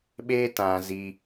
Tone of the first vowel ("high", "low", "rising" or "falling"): high